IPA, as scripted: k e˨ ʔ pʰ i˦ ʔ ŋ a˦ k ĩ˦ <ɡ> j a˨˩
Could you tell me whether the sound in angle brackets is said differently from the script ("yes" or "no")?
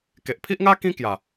yes